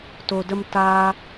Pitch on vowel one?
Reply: low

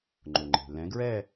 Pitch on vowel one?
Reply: low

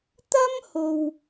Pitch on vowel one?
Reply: high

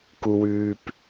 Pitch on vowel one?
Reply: low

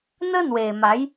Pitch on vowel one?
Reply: high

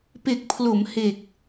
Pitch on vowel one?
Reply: low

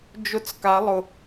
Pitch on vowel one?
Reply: falling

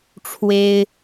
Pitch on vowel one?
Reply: high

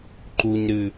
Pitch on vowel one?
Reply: low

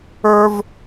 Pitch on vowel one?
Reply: high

